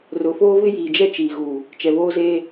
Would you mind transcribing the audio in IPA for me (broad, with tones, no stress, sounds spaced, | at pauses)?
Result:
r ʊ˨ f oː˦ v ɪ˦ j iː˨ d͡ʒ ɛ˦ t͡ʃ iː˨ ɣ uː˨ | t͡ʃ ɛ˨ β oː˦ z eː˦